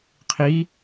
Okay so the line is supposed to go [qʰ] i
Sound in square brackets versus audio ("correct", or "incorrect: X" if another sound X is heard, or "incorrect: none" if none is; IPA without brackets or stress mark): correct